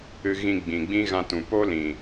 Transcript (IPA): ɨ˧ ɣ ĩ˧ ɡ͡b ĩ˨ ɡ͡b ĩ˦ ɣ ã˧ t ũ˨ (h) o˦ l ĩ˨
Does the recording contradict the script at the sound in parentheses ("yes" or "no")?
yes